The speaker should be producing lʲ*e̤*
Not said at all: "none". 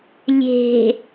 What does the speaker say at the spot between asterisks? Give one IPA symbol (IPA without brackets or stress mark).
e̤